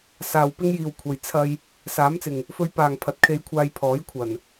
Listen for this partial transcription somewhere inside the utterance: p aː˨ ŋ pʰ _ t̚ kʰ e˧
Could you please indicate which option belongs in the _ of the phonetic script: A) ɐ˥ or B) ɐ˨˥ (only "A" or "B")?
B